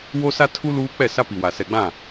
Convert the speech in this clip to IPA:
w o˦ s a˦ tʰ u˦ l uː˦ k͡p ɛ˦˨ s a˦ p i˨ w a˨ s ɛ˨ ɡ͡b ã˦˨

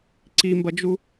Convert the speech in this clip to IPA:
ǀ i m b ɐ d͡ʒ u

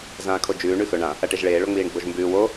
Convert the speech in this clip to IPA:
z ãː kʰ o d͡ʒ ʉː ɳ ʉ x ɵ ɳ ã | ɐ ʈ e ʒ ɭ eː ɭ o ŋ͡m iː ɳ ɡ͡b o ʒ m b ʉː w o

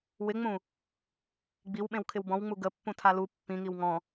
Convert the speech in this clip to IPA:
w ɪ ŋ͡m ũ | ɡ͡b i w ɓ ẽ w kʰ ɪ w b ɔ̃ w ŋ͡m u ɡ ə pː ũ tʰ a l u pː ĩ ŋ i w ŋ ɔ̃

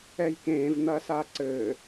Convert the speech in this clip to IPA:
ɛ j k ẽː v n̪ ɐː s aː ǀ ɘː

